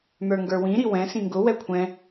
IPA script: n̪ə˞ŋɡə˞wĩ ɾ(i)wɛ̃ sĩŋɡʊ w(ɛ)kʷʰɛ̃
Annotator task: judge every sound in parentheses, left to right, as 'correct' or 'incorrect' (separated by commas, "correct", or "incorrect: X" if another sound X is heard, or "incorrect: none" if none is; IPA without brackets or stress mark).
correct, correct